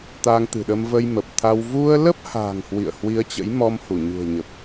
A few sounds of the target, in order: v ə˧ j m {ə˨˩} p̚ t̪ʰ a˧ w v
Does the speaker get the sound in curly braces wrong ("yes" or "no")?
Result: no